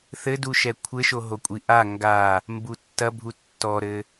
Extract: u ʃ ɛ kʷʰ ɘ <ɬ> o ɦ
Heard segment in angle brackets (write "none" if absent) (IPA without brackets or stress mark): ʃ